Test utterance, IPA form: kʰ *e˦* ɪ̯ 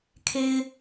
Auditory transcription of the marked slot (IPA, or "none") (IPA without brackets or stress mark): e˦